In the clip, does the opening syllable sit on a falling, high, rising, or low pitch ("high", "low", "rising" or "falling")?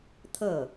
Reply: falling